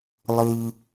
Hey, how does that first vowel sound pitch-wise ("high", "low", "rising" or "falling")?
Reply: high